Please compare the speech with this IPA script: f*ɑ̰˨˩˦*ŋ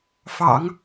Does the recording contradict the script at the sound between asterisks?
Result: no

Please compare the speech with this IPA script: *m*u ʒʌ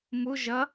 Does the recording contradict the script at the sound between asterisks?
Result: no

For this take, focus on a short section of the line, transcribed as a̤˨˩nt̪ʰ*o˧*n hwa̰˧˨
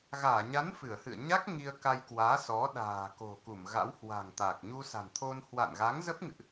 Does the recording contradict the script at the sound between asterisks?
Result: no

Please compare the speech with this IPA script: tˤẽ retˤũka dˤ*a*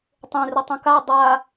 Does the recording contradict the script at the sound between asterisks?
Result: no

